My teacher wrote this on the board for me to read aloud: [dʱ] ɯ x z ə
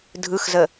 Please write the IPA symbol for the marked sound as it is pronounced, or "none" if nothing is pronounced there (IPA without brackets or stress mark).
dʱ